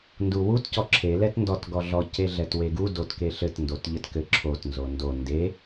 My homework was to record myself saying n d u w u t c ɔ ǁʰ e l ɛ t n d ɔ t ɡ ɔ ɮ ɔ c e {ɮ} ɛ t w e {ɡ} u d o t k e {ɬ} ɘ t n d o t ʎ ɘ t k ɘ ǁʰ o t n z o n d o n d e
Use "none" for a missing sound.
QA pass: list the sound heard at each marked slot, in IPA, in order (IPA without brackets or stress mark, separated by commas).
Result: ɮ, ɡ, ɬ